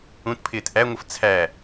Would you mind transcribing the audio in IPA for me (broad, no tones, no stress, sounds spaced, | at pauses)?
ũ t pʰ ɪː t ʔ æ ŋʷ ə f t͡sʰ æ